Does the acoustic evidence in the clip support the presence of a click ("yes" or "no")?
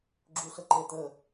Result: yes